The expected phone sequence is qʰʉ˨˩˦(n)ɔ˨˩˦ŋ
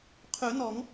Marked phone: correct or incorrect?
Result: correct